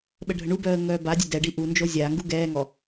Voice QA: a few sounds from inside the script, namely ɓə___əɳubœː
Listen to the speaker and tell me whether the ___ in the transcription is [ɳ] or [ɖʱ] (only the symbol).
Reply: ɖʱ